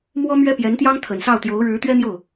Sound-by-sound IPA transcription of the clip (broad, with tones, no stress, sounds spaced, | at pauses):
m w ɔ˥ m ɥ ɛ˥ p j ɛ˧˥ n t̪ j ɑ˥ ŋ t̪ʰ ə˨˩ n s ɑ˥˩ ʊ̯ t̪ j o˧˥ ʊ̯ ɻ ɻ̩˧˥ t̪ ɥ ɛ˥ n̪ j o˥˩ ʊ̯